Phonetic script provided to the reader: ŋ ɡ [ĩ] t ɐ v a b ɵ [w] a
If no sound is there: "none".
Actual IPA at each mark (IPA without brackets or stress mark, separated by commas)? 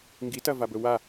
i, w